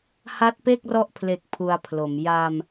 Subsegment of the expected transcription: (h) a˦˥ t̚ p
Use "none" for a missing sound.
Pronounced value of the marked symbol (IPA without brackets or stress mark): h